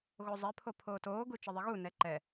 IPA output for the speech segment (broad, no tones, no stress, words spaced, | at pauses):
ɣozˤɪ pʰopʰoːtoː ɡut͡ʃɪðˤɪɣu nɛǃɛ